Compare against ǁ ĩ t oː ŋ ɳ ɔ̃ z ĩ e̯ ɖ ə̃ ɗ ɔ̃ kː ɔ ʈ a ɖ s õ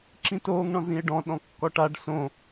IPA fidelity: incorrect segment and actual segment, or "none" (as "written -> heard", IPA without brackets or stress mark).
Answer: ə̃ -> ɔ̃